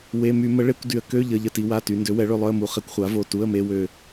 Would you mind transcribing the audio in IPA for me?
w e˩˧˩ m y˧˩˧ m ə˩˥ ɭ e˧˥˧ kʷ d y˩˧ ə̯ k ø˧˥˧ ʎ ə˩˧˩ ʎ ə˦˨ t i˩˧ w a˩˧˩ t y˩˧ n d ø˩˥ w ɛ˩˥ ɭ ø˦˨ lˠ œ˧˥˧ ə̯ m u˩˥ χ e˩˥ kʷ χʷ a˩˥ v o˩˧˩ t u˧˥˧ ə̯ m e˧˥˧ w ø˦˨

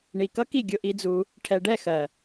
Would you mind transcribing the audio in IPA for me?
ɳ i˨ k ʌ˦ k i˦˨ ɡʲ ʊ˧ ʔ i˧ d͡z u˧ | ʈʰ ɛ˨ ɖ ɛ˦˨ x ɜ˨

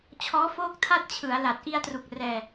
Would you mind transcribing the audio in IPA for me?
t͡ɕʰ ɔː˦˥ f oː˥˩ k̚ tʰ a˥˩ t̚ t͡ɕʰ ɯ˩˦ a̯ l a˨˩ t̚ ʔ i˧ a̯ t r u˨˩ k̚ r ɛː˧

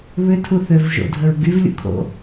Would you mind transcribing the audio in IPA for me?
β ʏ tʰ u θ ø v ʒ o̰ dʱ ə ɹ ɡ y v lʲ ṵ kʰ o̰

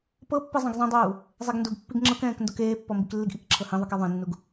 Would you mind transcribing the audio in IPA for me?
p ɤ pː ɯ zˤ ɛ̃ ɡ zˤ ẽ dˤ uː | zˤ e ɡ n d u ɡ pː i ɡ ŋ͡ǁ ɤ k ɛ̃ː k n d o k eː pː ɔ m b i k lː i ɡ ʔ i k ǁʰ ɤ h ẽ ðˤ ɯ k ɛ ðˤ ẽ nː u ɡ

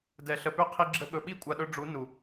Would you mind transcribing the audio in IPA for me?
d ɛ˨ ɬ ə˨ p ʏ˦ qʰ i˧ ɡ͡ǁ ə˧ ɠ ɵ˨ ɓ i˦ kʷʼ a˨ ɗ ɵ˧ ɖ͡ʐ u˨˦ n u˨

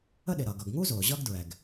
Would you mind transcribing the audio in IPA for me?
ə˥ ɗ ɪ˩ ɾ ʌː˩ ɡ ʌ˩ ɡ ŋ u˥ z ʊː˩ ʑ ʌ˥ ɡ d ɹ ɛ˩ ɡ

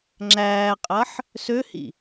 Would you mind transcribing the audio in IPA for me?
ŋ͡ǁ æː qʼ ɐː ħ | s ø h ḭ

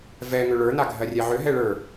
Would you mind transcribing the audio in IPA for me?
v ɛ ŋ ʏ ɭ ə˞ n a ɡʱ ɜ rʲ ɛ ʕ ʏ ɦ ɛ ɭ ə˞

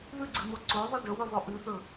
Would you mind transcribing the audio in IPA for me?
ð ʉ ɡ͡ǀ ɨ m o ǀ o ðˤ ɨ d ɵ w ʉ ðˤ o ʔ ʉ θ ɵ

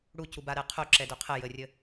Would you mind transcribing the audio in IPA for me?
ɽ u c u b a ɾ ɛ qʰ o ǁ ɛ d œ qʰ ə j ə rʲ ə

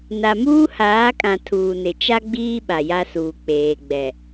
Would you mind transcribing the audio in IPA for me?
n a˨ m uː˦ h aː˨˦ kʼ ã˨ tʰ uː˨ n ɪ˨ t͡ʃ a˦ ɡ͡b iː˦ ɓ a˨ j a˦ s uː˨ k͡p eː˨ ɡ͡b ɛ˨

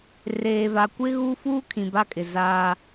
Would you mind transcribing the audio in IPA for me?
r eː˨ v a˨ kʷ ɪ˦ ɣ u˦ f uː˦ kʰ ĩ˨ b a˦ kʼ ɪ˨ z aː˦

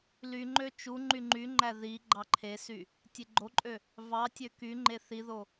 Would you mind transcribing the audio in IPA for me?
l y ŋ͡ǃ ø t͡ʃ u ŋ͡ǃ y ŋ͡ǃ y ŋ͡ǃ æ ð i ɡ͡ǃ ɑ ǃʰ e s y | tʲ e ɡ͡ǃ o ǃʼ ø | v ɑ tʲ ø k y ŋ͡ǃ e θ i ð o

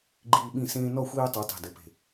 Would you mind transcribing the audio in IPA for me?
ɡ͡ǃ iː˦ ɓ ĩ˥˨ s ẽː˦ n ɔ˥˨ xʷ iː˦ tˤ i˨˦ tˤ i̤˧˩ d ɘ˨˦ p e̤˧˩

